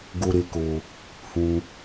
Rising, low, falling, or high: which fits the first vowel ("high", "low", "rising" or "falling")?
high